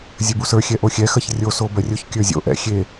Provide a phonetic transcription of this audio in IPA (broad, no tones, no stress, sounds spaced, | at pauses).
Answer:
zʲ ə b u s ə˞ xʲ ɛ ʔ o xʲ ɛ x ɜ ç rʲ o s o b ɜ rʲ o ç kʲ ə˞ zʲ o̰ ʔ ɛ̰ xʲ e